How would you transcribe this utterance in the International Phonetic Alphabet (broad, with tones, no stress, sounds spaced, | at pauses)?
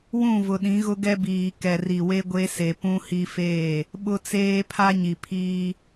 w ũ˦˨ v ʊ˨ ɗ ĩ˨˦ ɣ ʊ˦ ɡ ɛ˦ b iː˨ k ɛ˨ r i˨ w e˦ ɡʷ e˦ s e˨ p ũ˦ h i˦ f eː˦˨ | ɓ ʊ˦ t͡s eː˦ pʰ a˦ ɲ i˨ pʰ iː˦